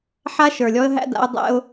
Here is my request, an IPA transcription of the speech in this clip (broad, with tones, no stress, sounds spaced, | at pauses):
ħ a˦ ʃ ə˞˨ lʲ ɔ˦ ə̯ ɦ æ̰˦ d a̰˦ ʊ̯ dˤ ɛ̰˦ ʊ̯